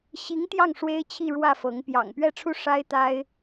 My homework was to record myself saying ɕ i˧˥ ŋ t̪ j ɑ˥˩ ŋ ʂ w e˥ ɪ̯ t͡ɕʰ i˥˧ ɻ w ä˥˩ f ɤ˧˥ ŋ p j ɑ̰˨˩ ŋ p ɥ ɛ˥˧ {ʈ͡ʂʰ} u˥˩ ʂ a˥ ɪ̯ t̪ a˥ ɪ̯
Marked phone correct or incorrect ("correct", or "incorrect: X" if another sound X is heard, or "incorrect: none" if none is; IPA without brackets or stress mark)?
correct